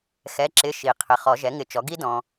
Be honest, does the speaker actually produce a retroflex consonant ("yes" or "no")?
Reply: no